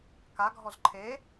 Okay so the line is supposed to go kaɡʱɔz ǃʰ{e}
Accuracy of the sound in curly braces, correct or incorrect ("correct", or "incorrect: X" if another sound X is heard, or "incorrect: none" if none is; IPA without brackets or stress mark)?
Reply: correct